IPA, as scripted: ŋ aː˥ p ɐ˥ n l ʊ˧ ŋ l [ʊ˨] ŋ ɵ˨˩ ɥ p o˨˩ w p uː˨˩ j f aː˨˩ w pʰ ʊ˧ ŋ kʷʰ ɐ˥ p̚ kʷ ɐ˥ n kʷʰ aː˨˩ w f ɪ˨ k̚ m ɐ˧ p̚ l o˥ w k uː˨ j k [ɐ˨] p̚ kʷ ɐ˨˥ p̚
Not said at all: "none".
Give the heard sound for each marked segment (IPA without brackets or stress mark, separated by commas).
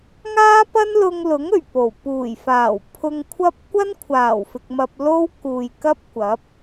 ʊ˨˥, ɐ˥